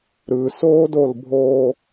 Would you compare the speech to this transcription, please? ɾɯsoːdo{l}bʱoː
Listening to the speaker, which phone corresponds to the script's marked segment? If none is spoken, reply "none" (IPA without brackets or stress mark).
l